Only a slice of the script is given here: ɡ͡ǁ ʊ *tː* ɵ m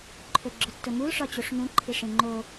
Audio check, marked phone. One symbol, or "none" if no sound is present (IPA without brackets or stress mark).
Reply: tː